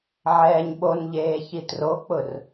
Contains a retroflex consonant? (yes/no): no